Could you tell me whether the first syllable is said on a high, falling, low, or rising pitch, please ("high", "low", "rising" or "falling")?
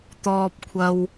high